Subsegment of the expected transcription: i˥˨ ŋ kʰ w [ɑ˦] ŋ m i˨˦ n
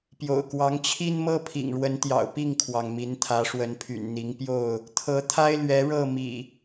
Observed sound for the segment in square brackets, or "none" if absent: ɑ˩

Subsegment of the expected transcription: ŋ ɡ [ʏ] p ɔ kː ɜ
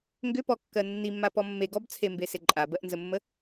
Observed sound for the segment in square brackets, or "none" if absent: ʏ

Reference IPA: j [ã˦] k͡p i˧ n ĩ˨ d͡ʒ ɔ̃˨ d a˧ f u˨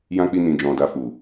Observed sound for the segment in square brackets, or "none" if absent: ã˦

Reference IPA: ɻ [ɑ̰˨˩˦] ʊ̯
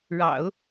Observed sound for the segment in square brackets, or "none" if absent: ɑ̰˨˩˦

